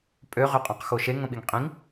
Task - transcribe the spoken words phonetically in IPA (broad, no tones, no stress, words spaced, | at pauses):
pʼøʁøqʼɔ̃qxo ʃeŋõɓiŋ qʼĩŋ